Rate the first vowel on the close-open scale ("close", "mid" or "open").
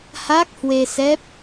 open